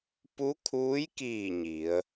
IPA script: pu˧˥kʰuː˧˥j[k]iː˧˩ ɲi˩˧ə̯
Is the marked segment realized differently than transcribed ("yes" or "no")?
no